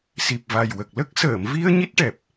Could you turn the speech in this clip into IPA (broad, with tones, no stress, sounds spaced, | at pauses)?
s i˨˩ p̚ v a˨˩ j w ə˨˩ k̚ l ə˦˥ k̚ s əː˨˩˨ m v i˧ ə̯ ɲ i˦˥ t̚ ʈ ɛ˨˩ p̚